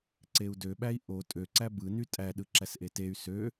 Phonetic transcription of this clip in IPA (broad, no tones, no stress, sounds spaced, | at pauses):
ǀ e u̯ d ø ɓ æ i̯ ʔ o tʼ ø ǀ æ b ɯ n y tʼ æ ɗ ɯ ǁ æ s ʔ e t e y̯ s ø